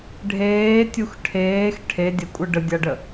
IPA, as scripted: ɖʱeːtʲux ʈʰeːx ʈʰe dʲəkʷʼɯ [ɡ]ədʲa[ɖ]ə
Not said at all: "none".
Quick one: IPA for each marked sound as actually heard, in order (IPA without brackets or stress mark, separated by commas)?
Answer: ɖ, ɖ